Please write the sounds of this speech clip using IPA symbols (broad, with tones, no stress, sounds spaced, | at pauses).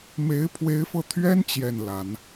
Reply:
m e˧˥ ɪ̯ pʰ w e˧˥ ɪ̯ f ɤ˧ t̪ʰ ɥ ɛ˥ n t͡ɕ j ɛ˥˩ n l a˨˩˦ n